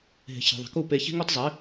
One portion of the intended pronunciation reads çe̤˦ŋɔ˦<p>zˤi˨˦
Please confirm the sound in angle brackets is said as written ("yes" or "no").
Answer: no